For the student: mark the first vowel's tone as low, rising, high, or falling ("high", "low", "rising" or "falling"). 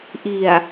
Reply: low